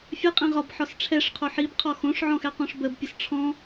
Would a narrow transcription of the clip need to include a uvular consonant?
yes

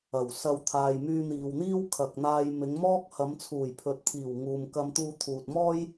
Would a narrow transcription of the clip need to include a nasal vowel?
no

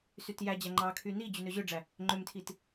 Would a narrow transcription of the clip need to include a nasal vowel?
no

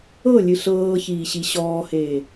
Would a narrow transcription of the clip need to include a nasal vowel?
no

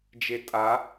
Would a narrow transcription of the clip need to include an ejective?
yes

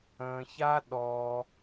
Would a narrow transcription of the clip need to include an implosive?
yes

